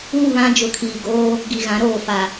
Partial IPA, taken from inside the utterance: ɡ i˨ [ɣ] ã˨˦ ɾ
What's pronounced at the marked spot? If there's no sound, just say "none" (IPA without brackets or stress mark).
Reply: ɣ